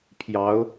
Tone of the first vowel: rising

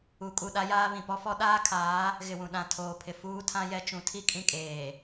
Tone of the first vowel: rising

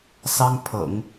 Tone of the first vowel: high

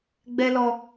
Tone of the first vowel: high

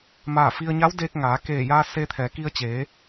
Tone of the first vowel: falling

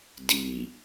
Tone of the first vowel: low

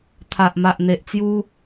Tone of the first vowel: low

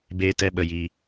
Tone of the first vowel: high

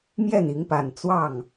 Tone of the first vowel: falling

